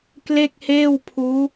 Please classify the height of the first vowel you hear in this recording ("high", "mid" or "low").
mid